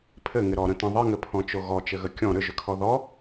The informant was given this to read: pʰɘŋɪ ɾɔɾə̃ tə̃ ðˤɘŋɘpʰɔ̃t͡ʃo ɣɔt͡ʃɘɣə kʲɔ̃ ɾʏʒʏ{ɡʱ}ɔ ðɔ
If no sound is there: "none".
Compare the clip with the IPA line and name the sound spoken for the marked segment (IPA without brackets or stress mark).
kʰ